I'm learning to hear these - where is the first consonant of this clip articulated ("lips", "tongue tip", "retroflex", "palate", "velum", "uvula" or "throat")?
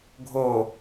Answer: velum